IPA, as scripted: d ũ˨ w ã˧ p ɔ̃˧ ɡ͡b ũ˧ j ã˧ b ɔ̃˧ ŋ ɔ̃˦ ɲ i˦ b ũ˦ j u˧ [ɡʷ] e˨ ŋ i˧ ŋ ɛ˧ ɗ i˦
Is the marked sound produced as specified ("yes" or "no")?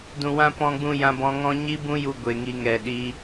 yes